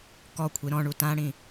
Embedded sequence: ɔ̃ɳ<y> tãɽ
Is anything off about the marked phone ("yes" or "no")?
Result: yes